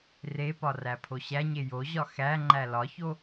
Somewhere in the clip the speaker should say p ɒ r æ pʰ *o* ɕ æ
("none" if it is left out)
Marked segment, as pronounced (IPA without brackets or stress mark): o